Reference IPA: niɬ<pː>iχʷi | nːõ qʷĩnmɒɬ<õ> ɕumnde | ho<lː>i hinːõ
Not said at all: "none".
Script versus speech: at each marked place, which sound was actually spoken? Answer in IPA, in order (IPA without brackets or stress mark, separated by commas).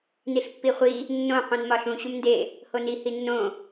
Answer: pː, ũ, n